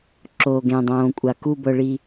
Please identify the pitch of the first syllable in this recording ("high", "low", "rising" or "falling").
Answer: low